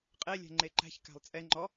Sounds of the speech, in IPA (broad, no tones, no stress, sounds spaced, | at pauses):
qʼ e lʲ ɛ̤ ŋ͡ǃ e ǃ æ̤ ç k æ̤ lˠ t͡sʼ ɛ ŋ͡ǃ ɔ